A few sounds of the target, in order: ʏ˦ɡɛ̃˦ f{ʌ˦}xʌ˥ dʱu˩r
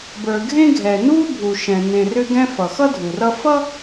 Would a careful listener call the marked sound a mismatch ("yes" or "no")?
yes